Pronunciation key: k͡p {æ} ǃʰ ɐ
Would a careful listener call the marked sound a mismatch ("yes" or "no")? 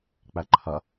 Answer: no